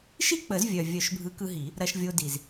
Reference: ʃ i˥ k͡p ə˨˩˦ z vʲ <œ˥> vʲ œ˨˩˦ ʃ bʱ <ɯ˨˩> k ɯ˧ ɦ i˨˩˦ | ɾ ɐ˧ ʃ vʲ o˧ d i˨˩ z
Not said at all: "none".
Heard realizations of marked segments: œ˨˩, ɯ˨˥

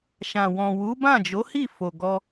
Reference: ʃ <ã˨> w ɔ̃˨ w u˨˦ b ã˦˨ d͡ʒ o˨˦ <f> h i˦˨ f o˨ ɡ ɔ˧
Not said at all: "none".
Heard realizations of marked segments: ã˨, none

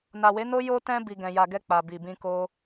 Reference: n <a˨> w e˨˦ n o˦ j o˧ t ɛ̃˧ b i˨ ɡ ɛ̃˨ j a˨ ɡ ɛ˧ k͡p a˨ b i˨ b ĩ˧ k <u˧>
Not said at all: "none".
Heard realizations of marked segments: a˨, o˧

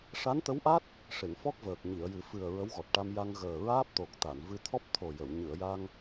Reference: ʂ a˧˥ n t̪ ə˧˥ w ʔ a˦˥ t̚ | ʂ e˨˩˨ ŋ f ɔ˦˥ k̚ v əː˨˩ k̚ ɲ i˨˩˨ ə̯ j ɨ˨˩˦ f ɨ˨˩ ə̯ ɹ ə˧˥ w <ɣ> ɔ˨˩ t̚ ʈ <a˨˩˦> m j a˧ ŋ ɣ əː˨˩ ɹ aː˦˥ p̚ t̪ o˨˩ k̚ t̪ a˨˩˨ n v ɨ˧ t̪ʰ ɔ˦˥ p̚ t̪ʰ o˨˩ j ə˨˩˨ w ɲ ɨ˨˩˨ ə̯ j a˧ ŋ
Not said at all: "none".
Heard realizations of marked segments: ɣ, a˧

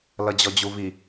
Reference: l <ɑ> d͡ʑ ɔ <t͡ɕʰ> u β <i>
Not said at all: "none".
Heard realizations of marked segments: ʌ, d͡ʑ, i

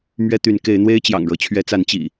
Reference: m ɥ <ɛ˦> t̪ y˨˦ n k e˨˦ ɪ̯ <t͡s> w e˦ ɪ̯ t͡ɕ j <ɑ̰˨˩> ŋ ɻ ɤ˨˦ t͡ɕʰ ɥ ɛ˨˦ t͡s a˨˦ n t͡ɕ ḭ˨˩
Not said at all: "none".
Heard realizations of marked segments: ɛ˦, n̪, ɑ̰˨˩

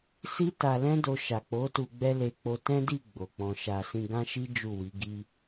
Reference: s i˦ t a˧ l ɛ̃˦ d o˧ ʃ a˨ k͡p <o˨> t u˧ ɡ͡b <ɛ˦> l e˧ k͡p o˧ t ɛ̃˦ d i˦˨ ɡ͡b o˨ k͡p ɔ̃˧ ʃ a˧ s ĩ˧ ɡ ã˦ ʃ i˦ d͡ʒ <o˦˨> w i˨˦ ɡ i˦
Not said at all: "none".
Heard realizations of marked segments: o˨˦, ɛ˦, u˦˨

